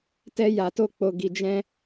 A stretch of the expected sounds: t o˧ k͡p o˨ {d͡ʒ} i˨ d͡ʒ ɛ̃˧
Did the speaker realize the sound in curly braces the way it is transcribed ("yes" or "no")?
no